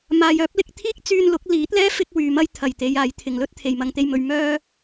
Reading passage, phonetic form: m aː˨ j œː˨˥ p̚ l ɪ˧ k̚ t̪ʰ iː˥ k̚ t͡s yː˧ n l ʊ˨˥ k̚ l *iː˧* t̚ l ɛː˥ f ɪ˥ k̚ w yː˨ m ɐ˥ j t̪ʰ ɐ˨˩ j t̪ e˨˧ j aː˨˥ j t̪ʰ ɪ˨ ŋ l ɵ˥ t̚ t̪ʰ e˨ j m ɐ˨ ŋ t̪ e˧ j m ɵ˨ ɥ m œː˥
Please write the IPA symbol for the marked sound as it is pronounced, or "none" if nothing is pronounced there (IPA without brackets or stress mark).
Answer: iː˨˥